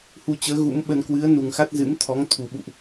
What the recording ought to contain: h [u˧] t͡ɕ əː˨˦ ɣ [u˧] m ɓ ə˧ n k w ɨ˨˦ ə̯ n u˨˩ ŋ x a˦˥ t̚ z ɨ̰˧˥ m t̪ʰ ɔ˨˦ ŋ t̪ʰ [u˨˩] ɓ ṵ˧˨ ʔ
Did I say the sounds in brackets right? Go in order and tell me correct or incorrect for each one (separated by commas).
correct, incorrect, correct